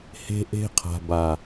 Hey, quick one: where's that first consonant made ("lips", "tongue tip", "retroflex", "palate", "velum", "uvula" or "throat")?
throat